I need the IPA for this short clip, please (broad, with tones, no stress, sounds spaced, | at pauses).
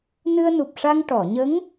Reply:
n ɨ˧ ə̯ n u˨˩ p̚ ʂ a˧ ŋ ʈ ɔ˨˩˨ ɲ ə˧˥ ŋ